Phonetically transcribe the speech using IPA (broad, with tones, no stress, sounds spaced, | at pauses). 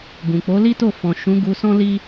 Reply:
ɡ ũ˨ k͡p o˨˦ l i˦ t o˦˨ f ɔ̃˨ ʃ ũ˨˦ ɡ u˧ s ɔ̃˦ l i˦